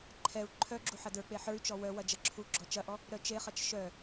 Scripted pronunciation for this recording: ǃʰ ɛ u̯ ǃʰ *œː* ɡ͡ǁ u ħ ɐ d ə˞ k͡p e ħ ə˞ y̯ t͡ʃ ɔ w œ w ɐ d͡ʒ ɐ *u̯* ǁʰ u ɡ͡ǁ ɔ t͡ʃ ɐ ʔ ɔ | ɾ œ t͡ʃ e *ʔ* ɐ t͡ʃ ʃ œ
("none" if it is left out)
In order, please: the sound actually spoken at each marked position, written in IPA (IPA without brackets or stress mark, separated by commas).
œ, none, χ